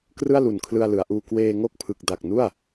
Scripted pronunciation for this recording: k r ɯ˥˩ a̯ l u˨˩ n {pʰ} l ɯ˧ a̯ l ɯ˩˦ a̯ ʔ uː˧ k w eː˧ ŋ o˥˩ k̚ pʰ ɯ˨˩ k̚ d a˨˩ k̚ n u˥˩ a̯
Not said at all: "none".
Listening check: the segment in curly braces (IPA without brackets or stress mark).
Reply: kʰ